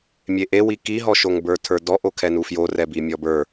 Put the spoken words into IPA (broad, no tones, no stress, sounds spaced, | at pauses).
mʲ e ʔ e w i k i ɦ ɔ ʃ o ŋ b ə˞ tʰ ə˞ d ɔ ʔ o kʰ ɛ n u f j o r ɛ b i mʲ ɔ b ə˞